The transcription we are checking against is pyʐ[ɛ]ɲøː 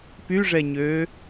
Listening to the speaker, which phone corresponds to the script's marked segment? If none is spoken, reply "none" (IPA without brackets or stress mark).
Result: ɛ